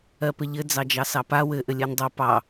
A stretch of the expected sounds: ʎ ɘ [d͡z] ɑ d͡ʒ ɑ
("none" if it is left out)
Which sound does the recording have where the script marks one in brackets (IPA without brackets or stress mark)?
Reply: d͡z